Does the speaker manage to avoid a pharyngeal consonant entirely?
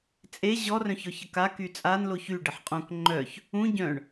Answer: no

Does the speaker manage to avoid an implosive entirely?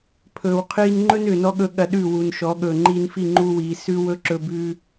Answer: no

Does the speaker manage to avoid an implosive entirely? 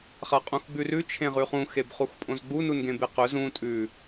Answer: yes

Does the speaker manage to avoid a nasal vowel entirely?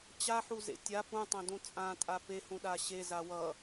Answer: no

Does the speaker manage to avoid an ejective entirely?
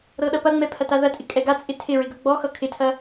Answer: no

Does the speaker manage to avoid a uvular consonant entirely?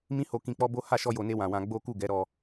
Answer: yes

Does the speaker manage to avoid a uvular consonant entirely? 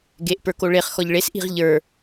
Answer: no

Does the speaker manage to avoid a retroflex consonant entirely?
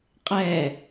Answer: yes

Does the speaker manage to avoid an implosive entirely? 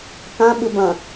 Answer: no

